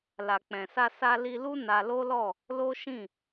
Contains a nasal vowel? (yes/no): yes